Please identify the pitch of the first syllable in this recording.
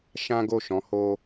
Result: high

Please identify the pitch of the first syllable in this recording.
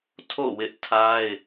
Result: falling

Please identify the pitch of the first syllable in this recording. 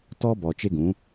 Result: high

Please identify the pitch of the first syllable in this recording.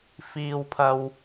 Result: low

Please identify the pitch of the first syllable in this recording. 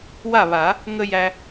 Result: falling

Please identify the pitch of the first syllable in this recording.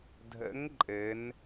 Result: rising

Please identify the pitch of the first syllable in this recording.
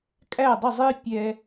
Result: falling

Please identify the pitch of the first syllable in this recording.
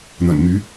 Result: low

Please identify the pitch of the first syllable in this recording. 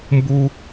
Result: high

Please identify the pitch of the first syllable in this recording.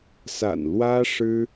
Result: low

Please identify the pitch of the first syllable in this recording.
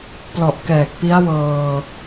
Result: low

